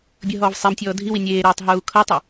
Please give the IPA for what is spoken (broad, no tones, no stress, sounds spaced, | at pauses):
bʲ ɤ ɦ ɔː v sˤ e m tʲ ɔː dʱ i w i nʲ eː ɾ eː tˤ ɦ uː kʰ ɤː tˤ a